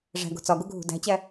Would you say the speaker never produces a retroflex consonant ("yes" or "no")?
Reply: no